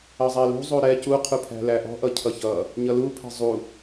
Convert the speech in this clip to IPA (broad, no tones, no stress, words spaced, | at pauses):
ʌzˤɛlṳzˤu ɾɛ cuqʰupʰæ̤ læʔɔ̤ʔʌ cʰʌçʌ | ɲʌlupʰɛ̤ zˤu